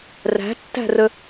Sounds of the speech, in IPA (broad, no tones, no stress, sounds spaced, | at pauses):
r æ̤ tː æ̤ r ə